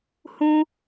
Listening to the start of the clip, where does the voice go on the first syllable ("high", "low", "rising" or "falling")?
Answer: high